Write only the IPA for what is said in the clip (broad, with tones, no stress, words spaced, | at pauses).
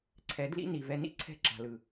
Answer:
ǀʰɛ˨˦dlḭ˦ni˨vɛ˧ nḭ˦ǀʰɛ̤˦˨ ǁa̤˨lɯ˨